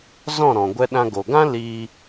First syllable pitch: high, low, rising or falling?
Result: falling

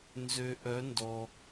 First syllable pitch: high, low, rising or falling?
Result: low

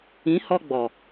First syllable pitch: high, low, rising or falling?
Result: rising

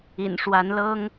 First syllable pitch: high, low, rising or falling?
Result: low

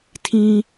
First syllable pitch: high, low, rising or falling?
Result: high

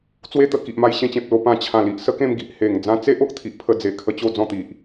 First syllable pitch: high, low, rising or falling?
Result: high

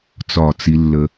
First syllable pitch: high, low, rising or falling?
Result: falling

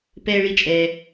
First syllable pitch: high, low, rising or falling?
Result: high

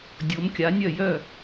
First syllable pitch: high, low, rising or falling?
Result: rising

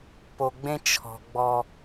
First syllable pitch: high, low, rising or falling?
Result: low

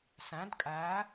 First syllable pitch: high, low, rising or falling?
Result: rising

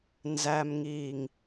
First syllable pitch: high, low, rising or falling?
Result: low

